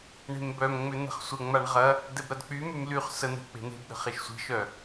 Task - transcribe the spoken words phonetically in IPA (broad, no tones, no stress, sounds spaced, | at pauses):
ɳ e̤ m b œ m ŋ͡m ʏ n̪ ə̤ χ sʷ ə ŋ͡m a ɳ ʁ ɐ | d ɛ b ɾ ɐ d k͡p y m y m l y χ s ə n̪ ɛ̤ k͡p e̤ n̪ e̤ b ɗ ə̤ χ e ʃ sʷ i̤ ʃ œ